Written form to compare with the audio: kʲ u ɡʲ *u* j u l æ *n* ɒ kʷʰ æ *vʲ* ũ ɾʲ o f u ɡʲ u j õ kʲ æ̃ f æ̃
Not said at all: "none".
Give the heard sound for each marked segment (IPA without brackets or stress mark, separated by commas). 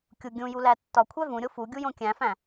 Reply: ũ, tː, v